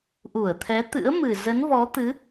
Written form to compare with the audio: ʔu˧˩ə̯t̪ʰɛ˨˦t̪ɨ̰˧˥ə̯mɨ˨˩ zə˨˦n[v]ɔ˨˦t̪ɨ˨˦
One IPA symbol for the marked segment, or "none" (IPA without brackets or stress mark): v